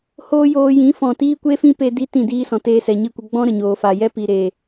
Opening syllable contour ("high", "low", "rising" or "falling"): high